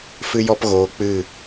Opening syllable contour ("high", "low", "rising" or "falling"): high